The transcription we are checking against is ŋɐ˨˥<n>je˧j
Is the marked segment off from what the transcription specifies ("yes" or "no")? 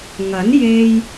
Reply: no